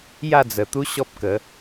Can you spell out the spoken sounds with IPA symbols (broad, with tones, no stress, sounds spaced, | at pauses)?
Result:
j a˥˧ d͡z ə˨˩ t̪ u˦ ɕ ɔ˦ p̚ k ə˨˦